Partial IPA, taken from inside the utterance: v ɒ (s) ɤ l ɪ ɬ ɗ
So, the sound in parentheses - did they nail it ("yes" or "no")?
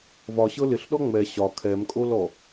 no